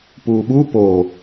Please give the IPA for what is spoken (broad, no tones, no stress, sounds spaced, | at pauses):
p uː ɓ u p o